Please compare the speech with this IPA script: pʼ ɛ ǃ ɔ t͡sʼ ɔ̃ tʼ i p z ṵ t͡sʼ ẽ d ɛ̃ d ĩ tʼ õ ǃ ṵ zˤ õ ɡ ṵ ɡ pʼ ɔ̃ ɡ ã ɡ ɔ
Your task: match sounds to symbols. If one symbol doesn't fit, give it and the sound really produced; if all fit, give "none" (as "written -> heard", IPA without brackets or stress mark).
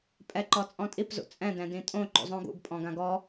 ẽ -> ɛ̃